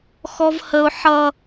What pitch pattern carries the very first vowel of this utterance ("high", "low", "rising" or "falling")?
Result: high